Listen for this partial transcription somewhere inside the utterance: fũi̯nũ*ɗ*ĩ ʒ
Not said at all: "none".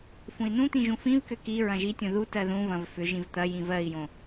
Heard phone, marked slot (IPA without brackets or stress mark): t̪